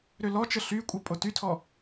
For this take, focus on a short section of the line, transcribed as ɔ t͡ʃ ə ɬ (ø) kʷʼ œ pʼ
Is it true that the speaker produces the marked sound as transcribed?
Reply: no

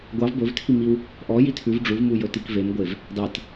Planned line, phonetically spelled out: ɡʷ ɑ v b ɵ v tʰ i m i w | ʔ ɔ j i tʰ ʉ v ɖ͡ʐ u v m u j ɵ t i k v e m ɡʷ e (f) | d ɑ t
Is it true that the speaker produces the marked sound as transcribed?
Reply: no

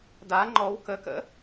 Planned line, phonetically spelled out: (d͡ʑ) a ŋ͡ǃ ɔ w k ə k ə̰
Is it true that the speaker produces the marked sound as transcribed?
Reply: no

